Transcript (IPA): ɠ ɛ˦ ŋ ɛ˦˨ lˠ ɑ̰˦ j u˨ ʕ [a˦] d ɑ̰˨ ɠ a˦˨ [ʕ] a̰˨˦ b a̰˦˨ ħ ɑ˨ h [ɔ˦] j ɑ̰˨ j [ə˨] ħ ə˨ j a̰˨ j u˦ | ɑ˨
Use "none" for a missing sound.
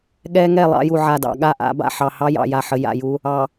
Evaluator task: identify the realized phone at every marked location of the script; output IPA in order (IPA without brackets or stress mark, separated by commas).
a˨, ʔ, ɑ˦, a˨